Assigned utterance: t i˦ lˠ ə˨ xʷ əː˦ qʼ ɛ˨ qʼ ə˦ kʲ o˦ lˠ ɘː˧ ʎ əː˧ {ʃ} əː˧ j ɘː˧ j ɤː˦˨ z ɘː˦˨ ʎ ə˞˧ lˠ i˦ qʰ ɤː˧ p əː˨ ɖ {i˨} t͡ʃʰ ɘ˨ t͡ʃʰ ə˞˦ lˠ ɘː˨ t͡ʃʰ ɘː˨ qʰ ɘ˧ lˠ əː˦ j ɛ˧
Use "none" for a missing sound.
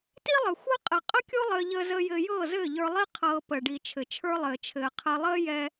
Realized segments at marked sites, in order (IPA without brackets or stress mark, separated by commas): z, i˨